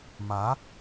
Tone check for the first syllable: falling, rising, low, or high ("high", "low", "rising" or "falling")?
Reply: rising